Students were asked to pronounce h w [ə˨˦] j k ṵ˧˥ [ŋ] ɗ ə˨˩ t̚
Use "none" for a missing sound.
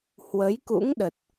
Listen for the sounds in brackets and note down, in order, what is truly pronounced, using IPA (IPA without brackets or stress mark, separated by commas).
ə˨˦, ŋ